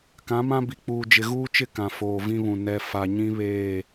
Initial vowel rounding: unrounded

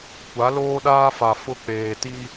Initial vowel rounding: unrounded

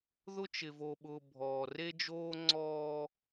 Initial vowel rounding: rounded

